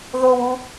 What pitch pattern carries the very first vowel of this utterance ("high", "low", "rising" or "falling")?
high